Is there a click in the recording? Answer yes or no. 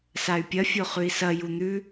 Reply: no